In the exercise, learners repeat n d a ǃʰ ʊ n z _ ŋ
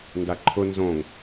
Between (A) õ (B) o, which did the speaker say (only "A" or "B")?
A